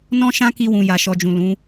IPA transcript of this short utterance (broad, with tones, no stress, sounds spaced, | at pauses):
n ɔ̃˦ ʃ ã˦ k i˧ w ũ˨ j a˨ ʃ ɔ˧ d͡ʒ ũ˨ l ũ˨˦